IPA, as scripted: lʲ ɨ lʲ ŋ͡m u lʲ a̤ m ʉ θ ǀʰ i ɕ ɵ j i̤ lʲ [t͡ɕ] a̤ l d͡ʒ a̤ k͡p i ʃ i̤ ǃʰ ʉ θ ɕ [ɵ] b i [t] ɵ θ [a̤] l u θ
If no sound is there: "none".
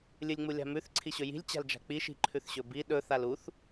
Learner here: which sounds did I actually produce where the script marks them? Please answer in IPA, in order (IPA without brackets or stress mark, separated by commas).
t͡ɕ, ɵ, ɗ, a